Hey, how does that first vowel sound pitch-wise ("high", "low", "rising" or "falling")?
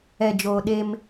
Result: low